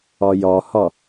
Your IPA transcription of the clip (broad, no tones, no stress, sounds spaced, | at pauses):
ɒ j ɒ h ɒ